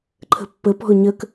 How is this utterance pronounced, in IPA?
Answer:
ǃʰ ə̤ pː ə p ɔ̤ ʊ̯ ɲ ə k

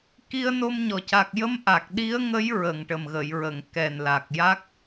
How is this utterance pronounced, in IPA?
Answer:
k i˧ ə̯ n o˧ m ɲ ɔ˨˩ c a˨˩ k̚ j ə˧ m ʔ a˨˩ k̚ ɗ i˧˥ ə̯ ŋ ə˧˥ j ɹ ə˨˩ ŋ ʈ ə˨˩ m ɣ ə˨˩˨ j ɹ ə˨˩˨ ŋ k ɛ˨˩ n l a˨˩ k̚ j a˦˥ k̚

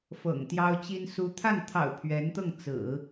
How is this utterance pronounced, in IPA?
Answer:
f ɤ̰˨˩ ŋ t̪ j ɑ˥ ʊ̯ t͡ɕ i˥ n s u˧˥ t̪ʰ a˥˩ n t̪ʰ ɑ̰˨˩ ʊ̯ pʰ ɥ ɛ˧˥ n t̪ ɤ˥˩ ŋ t͡s ɹ̩˨˩˦

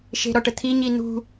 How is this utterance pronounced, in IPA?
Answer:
ʃ e̤ ɾ ɔ ʈ ə t̪ʰ i ɲ i n ṳ

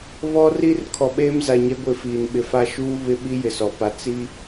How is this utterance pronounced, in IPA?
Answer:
β ɔ˦ r i˦ r kʰ ɔ˨ ɓ eː˦ m z a˨ ɲ ɛ˦ ɡʷ ɪ˦˨ f iː˨ n ɓ ɪ˨ f a˦ ʃ uː˦ β ɪ˦ ɓ i˦ j ɪ˨ s ɔ˨ p a˨ t͡s i˦

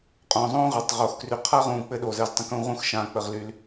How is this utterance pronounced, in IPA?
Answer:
qʼ õː˨ zˤ õː˦ ʁ a˨ tˤ ʁ oː˨ x k r y˨ qʰ a˦ ʁ ũː˨ k͡p ɘ˧ ɗ oː˨ z əː˧ z tˤ ə̃˨˦ k ũː˧ ʁ ũ˦ x ʃ ãː˧ k͡p ə˨ ʁ l y˨ l

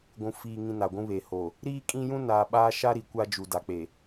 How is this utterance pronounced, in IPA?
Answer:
ɡʷ ũ˨ f iː˨ ŋ ĩ˨ n a˨ ɡʷ ũ˦ β e˨ h oː˨ | ɾ iː˦ kʼ ĩ˦ j ũ˦ n aː˨ ɓ aː˦ ʃ a˦ ɾ i˨ kʷ a˦ d͡ʒ u˨ d a˨ k͡p e˨

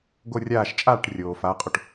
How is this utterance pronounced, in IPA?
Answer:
ɡ o˦˨ rʲ aː˦˨ ʃ t͡ʃʼ aː˦˨ ʈ rʲ oː˩ f aː˨˦ qʼ o˩ ʈ

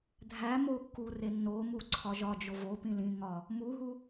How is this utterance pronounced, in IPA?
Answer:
dʱ æ m o kː u r e nː o m u ǀʰ ɒ ʒ ɒ d͡ʒ o v o p ĩ l ĩ ŋ ɒ | m u ɦ u

